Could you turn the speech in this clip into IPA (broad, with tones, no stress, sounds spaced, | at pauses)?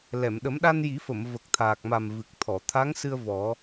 l ɛ˨˩˨ m ɗ ə˨˩˦ m ɗ a˧ n j i˨˩˦ f ə˨˩˨ m v ə˨˩ k̚ t̪ʰ aː˨˩ k̚ m a˨˩ m v ɨ˨˩ k̚ t̪ʰ ɔ˨˩˨ t̪ʰ a˧˥ ŋ s ɨ˧ ə̯ v ɔ˨˩˦